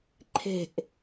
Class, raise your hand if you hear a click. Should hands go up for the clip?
yes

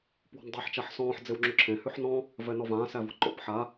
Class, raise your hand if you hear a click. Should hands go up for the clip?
yes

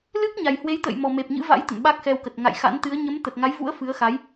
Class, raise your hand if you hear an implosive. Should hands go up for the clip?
yes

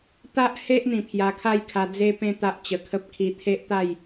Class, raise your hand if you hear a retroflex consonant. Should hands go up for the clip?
no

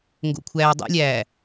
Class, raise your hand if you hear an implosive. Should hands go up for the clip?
no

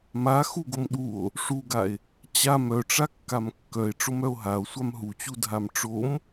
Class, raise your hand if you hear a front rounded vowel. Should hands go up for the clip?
yes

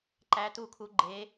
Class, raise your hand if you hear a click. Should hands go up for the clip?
yes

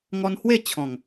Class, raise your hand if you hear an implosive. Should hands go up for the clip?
no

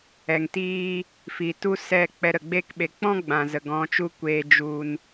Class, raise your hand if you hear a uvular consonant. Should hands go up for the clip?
no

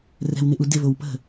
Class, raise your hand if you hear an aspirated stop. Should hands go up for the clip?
no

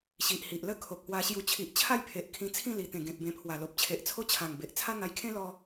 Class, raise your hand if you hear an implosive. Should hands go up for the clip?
no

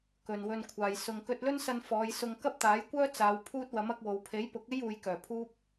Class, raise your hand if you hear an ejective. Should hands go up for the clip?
no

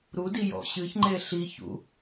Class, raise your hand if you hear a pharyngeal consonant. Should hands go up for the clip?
no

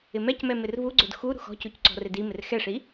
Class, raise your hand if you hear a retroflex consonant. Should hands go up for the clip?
yes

